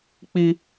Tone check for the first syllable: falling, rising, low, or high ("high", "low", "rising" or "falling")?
high